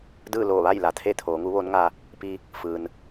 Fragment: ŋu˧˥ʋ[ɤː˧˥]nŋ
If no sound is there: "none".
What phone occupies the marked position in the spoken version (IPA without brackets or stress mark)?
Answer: oː˧˥